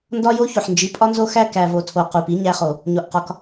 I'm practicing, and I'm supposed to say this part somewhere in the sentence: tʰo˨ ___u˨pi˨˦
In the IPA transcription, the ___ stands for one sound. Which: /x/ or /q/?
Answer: q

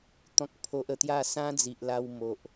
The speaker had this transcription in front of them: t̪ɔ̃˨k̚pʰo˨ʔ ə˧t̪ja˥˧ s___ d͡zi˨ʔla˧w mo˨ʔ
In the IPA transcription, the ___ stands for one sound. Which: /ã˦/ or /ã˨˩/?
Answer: ã˦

